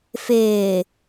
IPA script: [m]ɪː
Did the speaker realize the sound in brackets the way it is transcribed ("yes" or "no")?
no